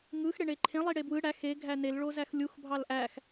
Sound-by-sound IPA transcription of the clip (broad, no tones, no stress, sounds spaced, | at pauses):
ŋ ɯ x ɽ e ɳ e ǃʰ ẽ lˠ i ɽ e b w ɯ ɽ æ x e ɡʱ æ n e l ɭ o z æ x lʲ u x bʱ ɑ l ʔ æ x